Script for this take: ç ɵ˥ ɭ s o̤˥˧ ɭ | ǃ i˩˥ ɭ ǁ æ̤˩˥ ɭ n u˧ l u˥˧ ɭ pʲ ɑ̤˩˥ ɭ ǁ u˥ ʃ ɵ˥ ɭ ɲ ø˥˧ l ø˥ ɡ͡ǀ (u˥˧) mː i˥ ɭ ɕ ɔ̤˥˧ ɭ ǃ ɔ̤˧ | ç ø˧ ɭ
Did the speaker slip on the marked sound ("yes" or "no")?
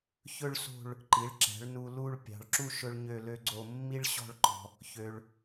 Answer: yes